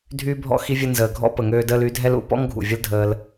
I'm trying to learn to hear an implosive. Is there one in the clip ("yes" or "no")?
no